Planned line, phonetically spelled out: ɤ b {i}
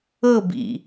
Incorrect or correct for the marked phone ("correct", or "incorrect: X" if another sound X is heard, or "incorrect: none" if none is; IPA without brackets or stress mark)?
incorrect: ḭ